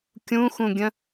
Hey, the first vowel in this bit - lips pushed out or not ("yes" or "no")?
yes